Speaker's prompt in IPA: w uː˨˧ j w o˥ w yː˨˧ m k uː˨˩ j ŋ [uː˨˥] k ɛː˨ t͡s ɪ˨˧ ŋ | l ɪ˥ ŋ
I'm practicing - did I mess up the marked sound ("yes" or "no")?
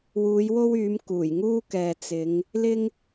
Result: yes